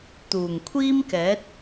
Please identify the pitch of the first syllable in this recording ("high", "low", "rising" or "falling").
low